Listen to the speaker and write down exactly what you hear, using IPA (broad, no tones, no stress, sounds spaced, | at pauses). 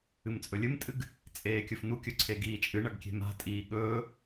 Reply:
ɨ m t͡sʼ ɵ lʲ ɨ m tʼ ɨ ɡ | t͡sʼ eː kʲ ɵ f n u kʲ ɵ ǀʰ e ɡ iː t͡ʃʼ ɨ ɳ ɐ ɡ kʲ e̤ m a̤ tʼ iː ɠ ɵː